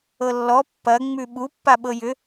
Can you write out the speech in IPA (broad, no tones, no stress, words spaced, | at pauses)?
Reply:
ɤlːɔ pːɐ ŋ͡mʉɓu pːaɓɤjʏ